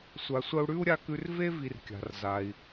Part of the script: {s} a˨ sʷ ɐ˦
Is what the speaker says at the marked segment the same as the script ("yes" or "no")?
no